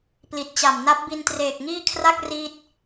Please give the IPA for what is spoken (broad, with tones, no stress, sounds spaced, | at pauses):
p l i˨˩ t̚ t͡ɕ a˨˩ m n a˦˥ p̚ b i˧ n t r eː˨˩ k̚ ŋ iː˥˩ kʰ r a˥˩ k̚ r iː˥˩ t̚